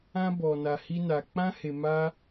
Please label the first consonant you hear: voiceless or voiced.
voiced